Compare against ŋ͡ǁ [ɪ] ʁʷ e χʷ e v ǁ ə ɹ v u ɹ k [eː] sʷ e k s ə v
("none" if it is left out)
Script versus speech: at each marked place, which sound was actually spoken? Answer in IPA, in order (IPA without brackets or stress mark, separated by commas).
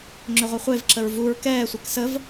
ʏ, ɛː